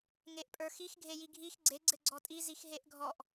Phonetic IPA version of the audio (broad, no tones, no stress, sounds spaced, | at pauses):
ŋ e ʔ pʼ ə˞ x i x ɡʱ e j i ɡʱ i x ɡ͡ǀ e ɡ͡ǀ ɘ ɡ͡ǀ ɔ tʼ i z i x ɦ e ʔ ɡʱ ɔ ʔ